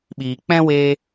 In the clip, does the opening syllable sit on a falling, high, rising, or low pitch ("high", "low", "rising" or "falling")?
low